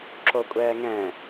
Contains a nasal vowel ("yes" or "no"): yes